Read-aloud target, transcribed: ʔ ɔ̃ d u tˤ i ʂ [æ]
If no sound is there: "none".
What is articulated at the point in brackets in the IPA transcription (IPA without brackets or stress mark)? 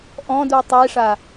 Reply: a